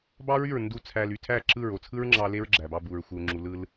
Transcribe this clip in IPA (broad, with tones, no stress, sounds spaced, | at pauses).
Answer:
b ɑ˦ ɹ y˦˨ ɹ n d u˦˨ t͡sʰ æ˧ l y˨ tʰ æ˦˨ ǁ ɯ˦˨ ɹ o˨ t͡sʰ ɯ˦ ɹ ŋ͡ǁ ɑ˧ l e˦ ɹ ɡ͡ǁ æ˨ b ɑ˧ b u˨ ɹ xʷ ɯ˨ u̯ ŋ͡ǁ u˨ l ɯ˧ l